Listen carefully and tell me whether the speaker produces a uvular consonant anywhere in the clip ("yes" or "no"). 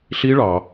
no